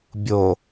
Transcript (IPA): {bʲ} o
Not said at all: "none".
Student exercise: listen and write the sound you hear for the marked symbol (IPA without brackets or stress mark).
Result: bʲ